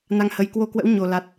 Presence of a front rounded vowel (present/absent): absent